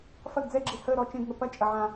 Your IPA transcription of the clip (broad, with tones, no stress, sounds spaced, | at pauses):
f ɐ˦˨ ɡ d͡z ɛ˦˨ ɡ͡ǁ i˨ h əː˦˨ ɾ ɔ˦˨ t͡ʃ ẽ˦˨ ɡ ŋ ə˨ p ɐ˦˨ t͡ʃʼ ɐ˨ ʕ ã˨